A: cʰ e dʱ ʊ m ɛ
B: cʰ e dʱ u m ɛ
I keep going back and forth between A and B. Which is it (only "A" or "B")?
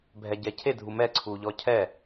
B